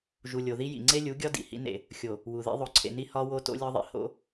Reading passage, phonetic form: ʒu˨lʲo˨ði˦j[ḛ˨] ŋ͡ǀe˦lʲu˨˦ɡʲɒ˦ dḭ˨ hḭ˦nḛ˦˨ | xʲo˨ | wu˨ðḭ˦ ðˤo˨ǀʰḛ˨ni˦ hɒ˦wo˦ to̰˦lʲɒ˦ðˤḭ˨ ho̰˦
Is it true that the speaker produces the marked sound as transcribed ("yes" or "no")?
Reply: no